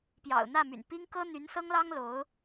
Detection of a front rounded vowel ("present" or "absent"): present